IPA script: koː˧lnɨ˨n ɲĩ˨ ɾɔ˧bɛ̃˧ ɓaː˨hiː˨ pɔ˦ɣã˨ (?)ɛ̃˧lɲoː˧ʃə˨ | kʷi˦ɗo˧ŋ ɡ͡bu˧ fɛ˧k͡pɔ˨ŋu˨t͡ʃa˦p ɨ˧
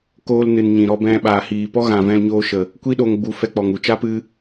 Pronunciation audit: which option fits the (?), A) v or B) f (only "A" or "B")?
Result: A